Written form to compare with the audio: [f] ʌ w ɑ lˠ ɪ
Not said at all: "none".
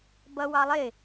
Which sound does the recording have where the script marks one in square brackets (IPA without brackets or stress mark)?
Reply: b